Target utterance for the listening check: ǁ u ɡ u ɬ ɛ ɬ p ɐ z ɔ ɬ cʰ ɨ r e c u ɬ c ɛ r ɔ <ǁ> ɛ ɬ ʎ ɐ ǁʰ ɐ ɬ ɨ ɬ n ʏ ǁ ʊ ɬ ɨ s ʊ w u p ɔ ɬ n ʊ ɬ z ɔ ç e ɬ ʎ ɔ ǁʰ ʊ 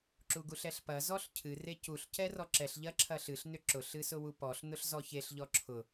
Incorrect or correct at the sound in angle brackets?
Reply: correct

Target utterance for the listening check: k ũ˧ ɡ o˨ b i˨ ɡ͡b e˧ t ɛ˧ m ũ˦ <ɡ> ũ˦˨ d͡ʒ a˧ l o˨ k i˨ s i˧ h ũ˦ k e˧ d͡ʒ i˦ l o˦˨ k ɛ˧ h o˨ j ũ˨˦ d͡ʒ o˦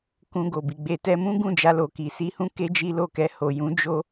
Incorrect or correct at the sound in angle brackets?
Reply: correct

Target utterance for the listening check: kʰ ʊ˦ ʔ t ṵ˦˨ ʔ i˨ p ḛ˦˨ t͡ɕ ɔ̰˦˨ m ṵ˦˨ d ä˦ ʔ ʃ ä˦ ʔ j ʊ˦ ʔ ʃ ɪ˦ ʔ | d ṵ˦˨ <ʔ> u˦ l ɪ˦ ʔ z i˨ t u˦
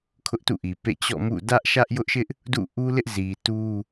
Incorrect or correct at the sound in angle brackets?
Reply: correct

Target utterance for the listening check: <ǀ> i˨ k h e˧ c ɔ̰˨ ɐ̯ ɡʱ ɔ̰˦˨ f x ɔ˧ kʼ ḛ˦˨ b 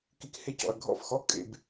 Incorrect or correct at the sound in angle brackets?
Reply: incorrect: k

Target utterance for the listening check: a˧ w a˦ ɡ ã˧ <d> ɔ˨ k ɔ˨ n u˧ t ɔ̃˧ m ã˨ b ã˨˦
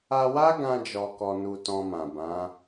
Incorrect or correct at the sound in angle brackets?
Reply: incorrect: d͡ʒ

